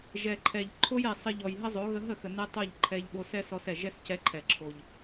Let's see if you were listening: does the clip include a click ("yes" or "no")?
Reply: yes